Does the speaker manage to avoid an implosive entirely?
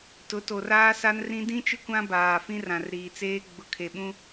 no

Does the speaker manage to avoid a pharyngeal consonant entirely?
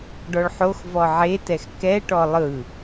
no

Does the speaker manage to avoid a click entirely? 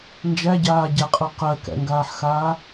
yes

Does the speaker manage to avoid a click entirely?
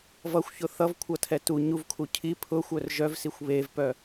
yes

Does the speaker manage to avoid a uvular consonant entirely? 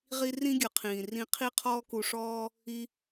no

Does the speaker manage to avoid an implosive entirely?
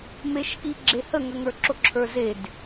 yes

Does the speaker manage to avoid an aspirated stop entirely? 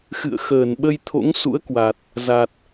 no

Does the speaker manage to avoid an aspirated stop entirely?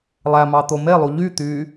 yes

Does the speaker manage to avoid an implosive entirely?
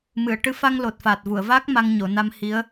yes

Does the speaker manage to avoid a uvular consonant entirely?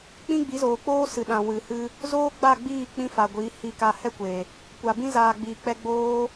yes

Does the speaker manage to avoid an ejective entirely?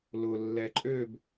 no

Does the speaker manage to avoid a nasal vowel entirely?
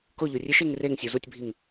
yes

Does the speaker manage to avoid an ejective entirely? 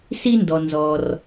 yes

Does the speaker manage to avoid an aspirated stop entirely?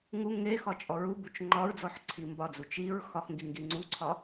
no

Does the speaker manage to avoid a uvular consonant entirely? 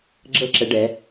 yes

